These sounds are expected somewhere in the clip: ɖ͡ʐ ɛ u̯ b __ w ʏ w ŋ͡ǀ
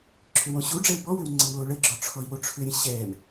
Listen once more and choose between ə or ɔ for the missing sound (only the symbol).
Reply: ɔ